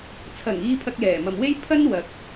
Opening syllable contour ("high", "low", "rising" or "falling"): low